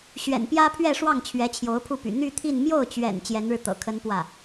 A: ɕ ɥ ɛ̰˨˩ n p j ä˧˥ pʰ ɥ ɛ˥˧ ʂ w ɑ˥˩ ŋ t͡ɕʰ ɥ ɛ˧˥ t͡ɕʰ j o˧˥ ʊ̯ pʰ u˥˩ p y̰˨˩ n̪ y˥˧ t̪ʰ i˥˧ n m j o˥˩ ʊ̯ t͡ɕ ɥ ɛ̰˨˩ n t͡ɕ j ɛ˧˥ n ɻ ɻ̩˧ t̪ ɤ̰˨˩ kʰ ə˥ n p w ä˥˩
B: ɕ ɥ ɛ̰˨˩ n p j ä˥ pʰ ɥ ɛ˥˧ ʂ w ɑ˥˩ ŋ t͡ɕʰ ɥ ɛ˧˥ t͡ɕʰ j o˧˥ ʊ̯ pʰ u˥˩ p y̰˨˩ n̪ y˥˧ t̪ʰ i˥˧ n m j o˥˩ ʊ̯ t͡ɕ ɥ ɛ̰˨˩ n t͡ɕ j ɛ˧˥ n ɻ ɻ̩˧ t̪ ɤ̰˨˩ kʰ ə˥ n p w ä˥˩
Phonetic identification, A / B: B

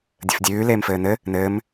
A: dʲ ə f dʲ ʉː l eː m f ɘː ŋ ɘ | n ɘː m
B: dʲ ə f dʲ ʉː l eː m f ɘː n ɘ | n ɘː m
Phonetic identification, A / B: B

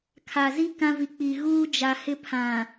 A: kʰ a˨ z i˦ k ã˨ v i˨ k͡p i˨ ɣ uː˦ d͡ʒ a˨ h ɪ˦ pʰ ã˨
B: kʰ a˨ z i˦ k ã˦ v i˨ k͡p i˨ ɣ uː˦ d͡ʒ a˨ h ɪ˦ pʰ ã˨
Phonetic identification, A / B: B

